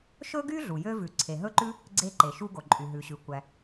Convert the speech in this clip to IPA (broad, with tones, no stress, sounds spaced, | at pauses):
ʃ ɵ˥ ɡ y˥ ɮ u˩ j ø˥ v ʉ˩ ǀʰ e˩ ɦ ɵ˥ ǃ ʉ˥ | ɡ͡ǀ e˥ ǃ e˩ ʃ u˥ ɡ o˩ ǃʼ y˩ ɦ ʉ˩ ɕ ʉ˩ kʷ æ˩